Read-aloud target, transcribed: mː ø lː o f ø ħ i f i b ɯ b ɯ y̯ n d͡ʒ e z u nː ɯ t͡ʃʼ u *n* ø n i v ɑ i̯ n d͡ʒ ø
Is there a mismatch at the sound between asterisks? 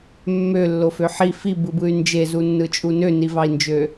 no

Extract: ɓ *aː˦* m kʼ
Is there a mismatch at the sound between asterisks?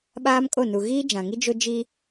no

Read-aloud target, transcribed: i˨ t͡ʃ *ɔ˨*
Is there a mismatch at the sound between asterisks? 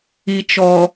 no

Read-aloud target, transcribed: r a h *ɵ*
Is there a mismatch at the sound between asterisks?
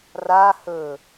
no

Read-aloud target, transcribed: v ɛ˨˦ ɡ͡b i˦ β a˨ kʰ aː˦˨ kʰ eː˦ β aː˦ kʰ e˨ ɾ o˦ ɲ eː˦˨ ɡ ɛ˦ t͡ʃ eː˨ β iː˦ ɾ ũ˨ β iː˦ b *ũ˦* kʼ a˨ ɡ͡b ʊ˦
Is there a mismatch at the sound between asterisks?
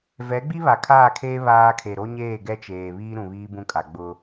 no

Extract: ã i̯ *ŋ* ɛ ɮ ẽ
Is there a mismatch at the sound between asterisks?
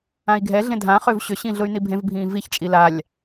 yes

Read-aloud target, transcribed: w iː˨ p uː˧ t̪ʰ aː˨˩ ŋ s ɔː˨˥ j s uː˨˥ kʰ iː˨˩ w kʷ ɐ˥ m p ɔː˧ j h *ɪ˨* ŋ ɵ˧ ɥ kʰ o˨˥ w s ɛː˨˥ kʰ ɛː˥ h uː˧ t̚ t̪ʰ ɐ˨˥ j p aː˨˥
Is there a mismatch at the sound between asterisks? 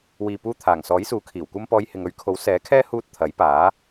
no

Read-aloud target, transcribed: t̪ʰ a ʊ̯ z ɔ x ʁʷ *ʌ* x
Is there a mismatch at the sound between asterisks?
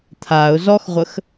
yes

